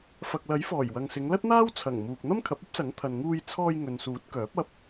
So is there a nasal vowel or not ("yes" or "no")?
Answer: no